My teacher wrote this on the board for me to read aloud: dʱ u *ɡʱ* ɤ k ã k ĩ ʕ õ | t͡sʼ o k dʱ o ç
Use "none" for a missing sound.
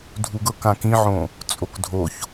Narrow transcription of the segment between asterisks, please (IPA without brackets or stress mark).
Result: ɡ